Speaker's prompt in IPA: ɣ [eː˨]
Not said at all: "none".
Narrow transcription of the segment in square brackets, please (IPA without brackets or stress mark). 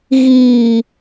iː˨